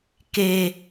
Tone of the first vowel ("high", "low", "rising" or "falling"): high